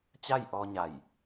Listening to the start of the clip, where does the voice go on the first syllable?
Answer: falling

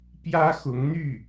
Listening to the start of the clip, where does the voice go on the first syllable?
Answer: high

